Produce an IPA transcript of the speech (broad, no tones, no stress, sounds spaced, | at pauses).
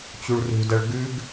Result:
t͡ɕ u ɭ r ṳ d ɐ ɭ ɡ ʉ ɡ